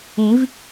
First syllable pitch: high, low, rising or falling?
rising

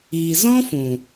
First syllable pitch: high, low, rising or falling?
low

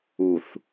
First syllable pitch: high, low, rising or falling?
low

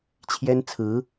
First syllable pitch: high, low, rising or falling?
high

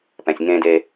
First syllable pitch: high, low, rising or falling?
low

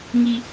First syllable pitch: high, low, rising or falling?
high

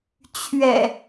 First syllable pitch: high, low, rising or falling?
low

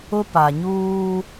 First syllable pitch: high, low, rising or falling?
high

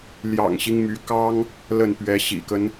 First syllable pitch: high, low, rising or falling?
low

